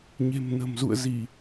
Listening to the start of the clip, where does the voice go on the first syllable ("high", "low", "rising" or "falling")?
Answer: low